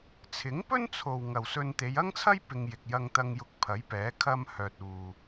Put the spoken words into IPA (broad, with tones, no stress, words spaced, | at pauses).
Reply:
t͡sʰɪ˨˥ŋpɵ˥nt͡sʰo˨w ŋɐ˨wsɵ˧nt̪e˨˧j ɐ˥ŋt͡sʰɐ˥j pɪ˧ŋ jɪ˨k̚jɐ˧ŋt̪ɐ˧ŋjʊ˧k̚ pʰɐ˨˥jpɛː˨˥ kʰɐ˥mhœː˧t̚uː˧